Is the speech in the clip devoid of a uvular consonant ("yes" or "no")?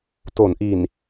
yes